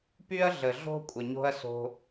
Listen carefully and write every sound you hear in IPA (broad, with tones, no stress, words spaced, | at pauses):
py˦ɐ̯ ɮə˨ɮo̤˦ kʷʼə˨ɲo̤˦ɐ̯so̤˧